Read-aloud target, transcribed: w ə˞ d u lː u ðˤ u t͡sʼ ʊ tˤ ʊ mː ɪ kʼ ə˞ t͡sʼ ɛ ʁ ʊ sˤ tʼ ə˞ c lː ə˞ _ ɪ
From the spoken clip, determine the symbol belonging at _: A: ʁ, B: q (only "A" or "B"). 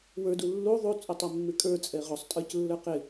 B